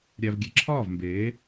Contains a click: yes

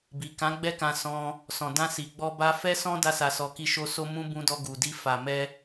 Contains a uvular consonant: no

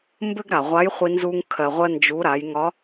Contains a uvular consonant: yes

